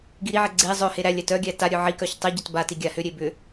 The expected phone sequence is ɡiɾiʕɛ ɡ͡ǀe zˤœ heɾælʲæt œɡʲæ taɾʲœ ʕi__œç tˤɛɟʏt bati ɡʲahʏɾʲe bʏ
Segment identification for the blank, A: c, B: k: B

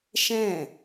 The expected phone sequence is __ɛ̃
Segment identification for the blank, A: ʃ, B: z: A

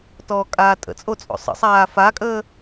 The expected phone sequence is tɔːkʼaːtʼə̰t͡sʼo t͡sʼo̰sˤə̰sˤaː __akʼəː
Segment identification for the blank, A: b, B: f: B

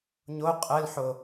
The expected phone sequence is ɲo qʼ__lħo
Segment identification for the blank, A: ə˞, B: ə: B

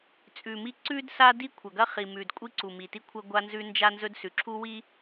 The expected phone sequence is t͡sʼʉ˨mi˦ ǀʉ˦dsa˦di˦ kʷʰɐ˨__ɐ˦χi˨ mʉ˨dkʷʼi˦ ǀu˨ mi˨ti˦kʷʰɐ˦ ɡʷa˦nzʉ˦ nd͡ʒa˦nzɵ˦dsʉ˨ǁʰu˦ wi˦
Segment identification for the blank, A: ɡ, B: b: A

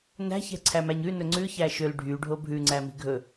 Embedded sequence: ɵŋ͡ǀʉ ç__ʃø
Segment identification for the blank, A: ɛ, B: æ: B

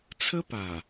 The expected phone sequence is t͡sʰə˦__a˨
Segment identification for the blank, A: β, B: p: B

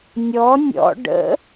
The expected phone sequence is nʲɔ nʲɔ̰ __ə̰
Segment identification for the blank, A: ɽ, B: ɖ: B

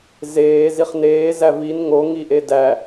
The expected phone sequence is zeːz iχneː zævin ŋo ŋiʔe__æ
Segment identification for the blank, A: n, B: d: B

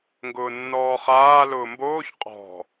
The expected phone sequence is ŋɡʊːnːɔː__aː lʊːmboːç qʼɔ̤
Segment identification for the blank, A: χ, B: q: A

